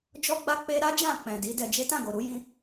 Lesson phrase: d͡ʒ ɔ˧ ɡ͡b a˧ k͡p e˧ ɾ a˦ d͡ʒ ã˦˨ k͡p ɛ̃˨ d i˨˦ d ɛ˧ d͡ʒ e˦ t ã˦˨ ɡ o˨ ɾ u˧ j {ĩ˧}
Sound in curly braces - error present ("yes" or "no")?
no